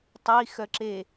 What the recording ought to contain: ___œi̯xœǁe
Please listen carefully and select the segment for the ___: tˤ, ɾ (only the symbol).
tˤ